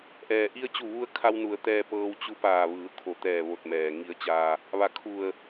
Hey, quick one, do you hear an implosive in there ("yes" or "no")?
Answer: no